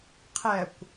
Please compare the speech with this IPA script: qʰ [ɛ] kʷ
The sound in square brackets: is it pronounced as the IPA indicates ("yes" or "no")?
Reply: yes